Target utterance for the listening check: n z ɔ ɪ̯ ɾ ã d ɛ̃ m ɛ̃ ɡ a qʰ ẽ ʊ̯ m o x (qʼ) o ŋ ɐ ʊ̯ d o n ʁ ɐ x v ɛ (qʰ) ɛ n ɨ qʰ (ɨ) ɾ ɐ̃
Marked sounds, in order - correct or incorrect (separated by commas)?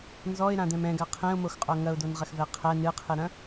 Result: correct, correct, correct